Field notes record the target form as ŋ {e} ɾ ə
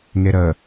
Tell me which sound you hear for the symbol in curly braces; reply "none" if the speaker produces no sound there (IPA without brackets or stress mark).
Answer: e